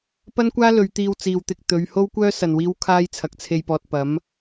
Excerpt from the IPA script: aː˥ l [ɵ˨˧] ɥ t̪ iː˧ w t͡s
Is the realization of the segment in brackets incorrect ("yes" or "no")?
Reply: no